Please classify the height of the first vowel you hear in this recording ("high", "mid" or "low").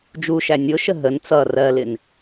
high